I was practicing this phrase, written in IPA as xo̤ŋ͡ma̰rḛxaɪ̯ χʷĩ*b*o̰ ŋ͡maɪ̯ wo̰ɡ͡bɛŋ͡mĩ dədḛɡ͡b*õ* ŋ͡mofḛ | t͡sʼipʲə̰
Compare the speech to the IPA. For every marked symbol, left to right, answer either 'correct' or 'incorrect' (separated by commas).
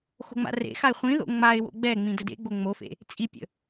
incorrect, incorrect